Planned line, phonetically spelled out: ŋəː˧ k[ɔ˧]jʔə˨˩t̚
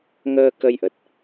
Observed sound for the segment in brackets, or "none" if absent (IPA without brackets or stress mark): ə˧